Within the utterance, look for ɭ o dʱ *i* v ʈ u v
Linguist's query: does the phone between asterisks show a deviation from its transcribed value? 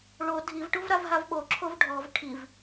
no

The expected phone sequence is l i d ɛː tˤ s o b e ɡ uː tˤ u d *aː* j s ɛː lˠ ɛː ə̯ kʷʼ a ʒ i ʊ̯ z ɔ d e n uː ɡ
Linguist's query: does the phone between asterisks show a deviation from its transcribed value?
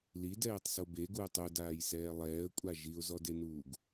no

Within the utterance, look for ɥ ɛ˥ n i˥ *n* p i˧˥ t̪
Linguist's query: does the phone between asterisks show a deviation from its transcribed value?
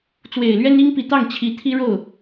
yes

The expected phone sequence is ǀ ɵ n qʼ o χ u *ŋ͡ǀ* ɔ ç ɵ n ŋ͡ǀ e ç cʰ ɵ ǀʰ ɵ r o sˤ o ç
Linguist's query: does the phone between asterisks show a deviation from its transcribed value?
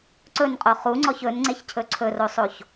no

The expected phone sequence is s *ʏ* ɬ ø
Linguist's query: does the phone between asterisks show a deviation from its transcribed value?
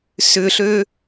no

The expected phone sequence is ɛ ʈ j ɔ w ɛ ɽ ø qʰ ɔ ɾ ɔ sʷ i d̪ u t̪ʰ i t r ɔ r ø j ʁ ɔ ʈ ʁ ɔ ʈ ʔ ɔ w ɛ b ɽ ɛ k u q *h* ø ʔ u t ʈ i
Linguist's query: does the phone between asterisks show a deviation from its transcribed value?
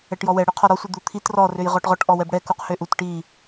no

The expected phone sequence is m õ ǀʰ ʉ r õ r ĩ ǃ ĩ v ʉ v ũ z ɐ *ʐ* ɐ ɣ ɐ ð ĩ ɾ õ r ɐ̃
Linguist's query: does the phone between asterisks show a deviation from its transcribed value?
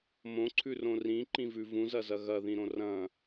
yes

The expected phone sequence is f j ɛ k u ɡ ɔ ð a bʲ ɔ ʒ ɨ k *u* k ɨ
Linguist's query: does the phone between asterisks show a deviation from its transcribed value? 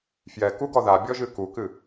no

